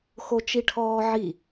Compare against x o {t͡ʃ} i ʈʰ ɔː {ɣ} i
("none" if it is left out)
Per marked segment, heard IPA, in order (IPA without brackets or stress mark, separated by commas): t͡ʃ, ʕ